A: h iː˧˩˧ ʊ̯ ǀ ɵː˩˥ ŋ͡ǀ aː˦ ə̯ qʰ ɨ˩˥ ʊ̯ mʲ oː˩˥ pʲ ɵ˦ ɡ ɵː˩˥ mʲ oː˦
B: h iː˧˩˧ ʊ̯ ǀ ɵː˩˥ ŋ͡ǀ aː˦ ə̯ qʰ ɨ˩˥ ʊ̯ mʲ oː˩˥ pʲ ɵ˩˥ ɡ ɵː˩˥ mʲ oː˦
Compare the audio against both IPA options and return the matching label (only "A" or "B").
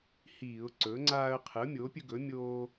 A